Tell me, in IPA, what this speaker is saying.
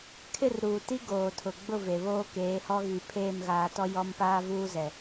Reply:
kʰ ɪ˦˨ r ɾ uː˨ t i˦ ɡ oː˨ tʰ ʊ˨ ɡ͡b ʊ˦˨ v e˨ β oː˦ k eː˨˦ h ɔ˦ ɣ i˨ pʰ eː˦˨ m ɣ aː˨ t ɔ˦ j ɔ˦ m p aː˦ v uː˦ z ɛ˨

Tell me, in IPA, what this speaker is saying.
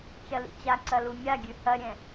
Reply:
t͡ʃ ɐ l ḭ t͡ɕ a ǀ ɐ l u mʲ a ɡʲ ʉ h ɐ ɾʲ ɛ̃

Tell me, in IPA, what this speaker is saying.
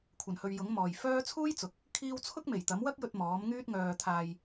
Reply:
kʷʰ ɐ˨˩ n h ɵ˨ ɥ j ʊ˨˥ ŋ m ɔː˨ j f œː˥ t͡sʰ uː˥ j t͡s ʊ˨ k̚ | kʰ iː˧ w t͡sʰ ʊ˥ k̚ m e˨˩ j t̪ ɐ˨˥ m w ɐ˥ k̚ j ɵ˧ t̚ m ɔː˨˥ m ŋ yː˥ t̚ ŋ œː˧ t̪ʰ aː˧ j

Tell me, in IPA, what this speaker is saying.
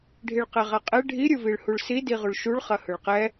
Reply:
ɖʱ i ɭ q ɛ ʁ a qʼ ɛ ɖʱ i ɾʲ ɯ v i ɭ h u ɭ s i d i ʁ u ɭ ʃ u ɭ χ ɐ h ɯ ɭ q ɛ

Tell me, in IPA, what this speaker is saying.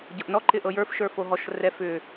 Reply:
ɟ ɤ ʔ n ɔ ǃ ɪ ʔ ɤ j ə˞ f ʃ ə˞ f o ɦ ɔ ʃ r ɛ f ʏ

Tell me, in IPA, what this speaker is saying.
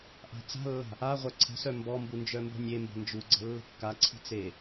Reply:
ʔ a̤ t͡s a̤ lː a̤ | a ʁʷ œ ǀʰ ə̤ s œ m b ɔ m b u n d͡ʒ œ m b ə̤ nʲ e m b ə̤ n d͡ʒ u ɡ͡ǀ ə̤ lː ə̤ kː a ǀʰ i̤ t͡s e

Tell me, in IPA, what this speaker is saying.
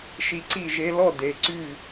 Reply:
ʃ i˧ ǀ i˥˩ ʒ e˧ l ɔ˥˩ d e˩˥ ǀ y˥˩

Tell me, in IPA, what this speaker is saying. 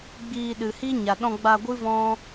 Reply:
ɡ͡b iː˧ ɗ ɨ˨ h i˦ ɲ a˨ ɗ ɔ̃˧ ɡ͡b a˧ ɡʷ ɨ˦ v ɔ̃˦

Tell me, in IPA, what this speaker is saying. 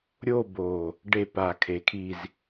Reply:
ɾʲ o˦˨ b o˨˩ | ɖ e˦˨ p a˨˩ kʰ e˨˩ kʰ i˦˨ z

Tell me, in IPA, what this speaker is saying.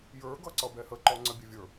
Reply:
j ə˞ ɡ ʌ ǀ ʌ b ɛ h ə ǃ ɔ ŋ͡ǀ ə bʲ ɛ vʲ ə˞

